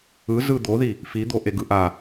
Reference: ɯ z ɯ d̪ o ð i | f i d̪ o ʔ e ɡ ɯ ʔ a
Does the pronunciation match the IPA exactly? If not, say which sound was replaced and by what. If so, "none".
none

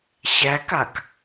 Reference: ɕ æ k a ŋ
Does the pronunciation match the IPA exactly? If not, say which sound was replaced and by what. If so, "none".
ŋ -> k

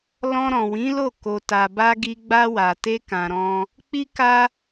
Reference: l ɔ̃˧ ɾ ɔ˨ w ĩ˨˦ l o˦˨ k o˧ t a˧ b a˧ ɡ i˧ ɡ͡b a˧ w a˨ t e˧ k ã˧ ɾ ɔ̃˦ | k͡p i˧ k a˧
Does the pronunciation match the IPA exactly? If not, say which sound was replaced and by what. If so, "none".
ɔ˨ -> ɔ̃˨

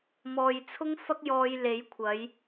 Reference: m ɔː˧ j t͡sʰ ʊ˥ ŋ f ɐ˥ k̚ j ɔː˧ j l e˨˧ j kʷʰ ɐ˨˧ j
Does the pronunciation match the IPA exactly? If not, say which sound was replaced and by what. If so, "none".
none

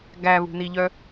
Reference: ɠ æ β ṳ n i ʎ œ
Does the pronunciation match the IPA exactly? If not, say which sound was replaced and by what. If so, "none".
ɠ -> ɡ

